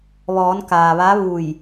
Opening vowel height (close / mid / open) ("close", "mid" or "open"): mid